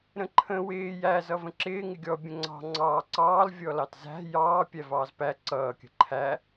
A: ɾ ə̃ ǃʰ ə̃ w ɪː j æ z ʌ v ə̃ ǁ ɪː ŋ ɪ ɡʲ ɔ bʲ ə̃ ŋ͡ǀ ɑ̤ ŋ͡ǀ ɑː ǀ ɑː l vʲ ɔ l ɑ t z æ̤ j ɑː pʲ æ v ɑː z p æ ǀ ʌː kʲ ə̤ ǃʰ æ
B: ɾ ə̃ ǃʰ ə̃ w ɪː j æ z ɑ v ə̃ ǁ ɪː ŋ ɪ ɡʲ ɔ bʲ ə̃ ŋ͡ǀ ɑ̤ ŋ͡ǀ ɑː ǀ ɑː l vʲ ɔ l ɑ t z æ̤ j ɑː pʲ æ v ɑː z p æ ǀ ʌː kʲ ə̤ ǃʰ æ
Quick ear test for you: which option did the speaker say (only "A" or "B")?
A